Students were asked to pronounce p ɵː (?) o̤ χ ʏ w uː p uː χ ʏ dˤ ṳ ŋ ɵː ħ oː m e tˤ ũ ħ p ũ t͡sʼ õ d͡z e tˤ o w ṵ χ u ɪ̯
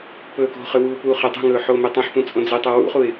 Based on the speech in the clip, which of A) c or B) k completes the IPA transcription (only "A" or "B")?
B